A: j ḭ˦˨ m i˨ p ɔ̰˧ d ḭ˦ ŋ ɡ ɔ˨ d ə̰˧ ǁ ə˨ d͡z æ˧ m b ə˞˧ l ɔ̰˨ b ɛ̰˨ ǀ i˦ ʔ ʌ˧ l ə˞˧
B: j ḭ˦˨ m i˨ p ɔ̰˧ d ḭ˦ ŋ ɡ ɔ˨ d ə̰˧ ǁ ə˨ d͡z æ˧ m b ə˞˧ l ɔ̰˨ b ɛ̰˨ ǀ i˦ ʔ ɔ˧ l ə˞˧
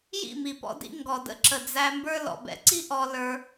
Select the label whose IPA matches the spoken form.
B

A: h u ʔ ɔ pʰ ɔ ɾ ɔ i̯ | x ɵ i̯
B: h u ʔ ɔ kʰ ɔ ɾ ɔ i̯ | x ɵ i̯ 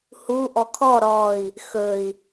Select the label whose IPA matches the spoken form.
B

